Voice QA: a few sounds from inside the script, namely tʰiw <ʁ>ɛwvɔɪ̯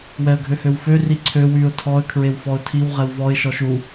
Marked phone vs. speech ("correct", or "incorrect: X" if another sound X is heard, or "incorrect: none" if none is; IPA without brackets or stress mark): correct